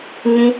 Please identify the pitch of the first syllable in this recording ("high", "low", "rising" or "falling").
high